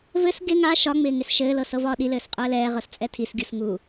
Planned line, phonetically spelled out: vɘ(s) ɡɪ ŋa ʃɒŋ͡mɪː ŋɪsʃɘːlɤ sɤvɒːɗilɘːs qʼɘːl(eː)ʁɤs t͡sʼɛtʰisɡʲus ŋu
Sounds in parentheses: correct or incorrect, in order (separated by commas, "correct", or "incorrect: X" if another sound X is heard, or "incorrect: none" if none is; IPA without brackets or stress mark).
correct, incorrect: ɛː